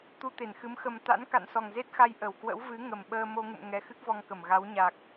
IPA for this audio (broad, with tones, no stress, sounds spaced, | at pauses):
t̪ u˧ t̪ e˧˩ n x ɨ˨˦ m x ə˨˩ m t̪ a̰˧˥ n k a̰˧˨ n s ɔ˨˩ ŋ z e˦˥ t̚ x a˧ j ʔ ə˧˩ w k w ə̰˧˥ w v ɨ˨˦ ŋ ə˨˩ m ɓ əː˧ m o˧ ŋ ṵ˧˨ m ŋ ɛ˨˦ x ɨ˦˥ k̚ v ɔ˧ ŋ k ə˧˩ m ɣ a˨˦ w ɲ a˨˩ k̚